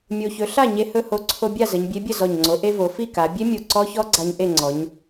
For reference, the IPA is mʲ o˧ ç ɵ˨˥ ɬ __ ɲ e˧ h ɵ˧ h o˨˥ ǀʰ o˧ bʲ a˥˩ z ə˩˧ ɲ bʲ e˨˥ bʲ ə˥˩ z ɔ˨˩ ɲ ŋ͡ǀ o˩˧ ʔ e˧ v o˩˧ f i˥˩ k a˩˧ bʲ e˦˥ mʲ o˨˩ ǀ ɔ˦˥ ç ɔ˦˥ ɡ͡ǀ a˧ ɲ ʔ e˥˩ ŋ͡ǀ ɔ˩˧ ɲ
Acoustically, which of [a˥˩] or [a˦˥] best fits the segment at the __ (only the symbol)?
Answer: a˥˩